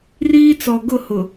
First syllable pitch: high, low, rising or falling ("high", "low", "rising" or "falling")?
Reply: high